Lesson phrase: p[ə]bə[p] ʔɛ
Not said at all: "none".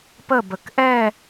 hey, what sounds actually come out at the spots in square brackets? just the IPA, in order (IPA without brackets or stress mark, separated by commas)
ə, k